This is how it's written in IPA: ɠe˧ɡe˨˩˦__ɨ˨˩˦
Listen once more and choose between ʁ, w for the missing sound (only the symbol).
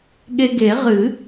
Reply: ʁ